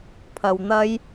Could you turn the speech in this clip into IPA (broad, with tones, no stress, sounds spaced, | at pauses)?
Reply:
pʰ ɐ˧ w n̪ ɐ˥ j